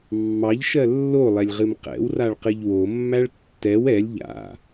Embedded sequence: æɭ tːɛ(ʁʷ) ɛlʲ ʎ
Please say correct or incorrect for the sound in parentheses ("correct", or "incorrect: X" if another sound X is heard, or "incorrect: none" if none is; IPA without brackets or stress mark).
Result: incorrect: w